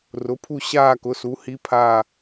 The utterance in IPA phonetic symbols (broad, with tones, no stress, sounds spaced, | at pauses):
r ʊ˩˥ pʰ u˥˧ ɕ aː˥˧ k ʊ˩˥ s u˩˥ h i˧˥ pʰ aː˥˧